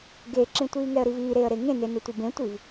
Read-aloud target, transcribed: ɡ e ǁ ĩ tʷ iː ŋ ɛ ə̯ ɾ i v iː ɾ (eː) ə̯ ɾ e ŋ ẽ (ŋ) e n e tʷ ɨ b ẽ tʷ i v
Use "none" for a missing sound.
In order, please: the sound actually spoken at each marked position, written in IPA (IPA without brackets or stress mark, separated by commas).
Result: eː, n